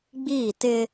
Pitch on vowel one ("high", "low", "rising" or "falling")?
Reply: falling